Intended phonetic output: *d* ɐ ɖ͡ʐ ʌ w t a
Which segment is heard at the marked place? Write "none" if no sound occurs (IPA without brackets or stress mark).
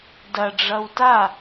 d